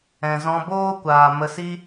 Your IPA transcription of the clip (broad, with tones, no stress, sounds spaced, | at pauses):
ɛ̃˨ z ɔ̃˧ b oː˦ kʷ aː˨ m ə˧ s i˦